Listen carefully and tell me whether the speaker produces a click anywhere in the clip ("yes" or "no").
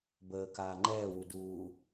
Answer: yes